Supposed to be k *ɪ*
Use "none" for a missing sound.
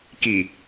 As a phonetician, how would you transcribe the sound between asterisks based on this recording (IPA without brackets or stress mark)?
i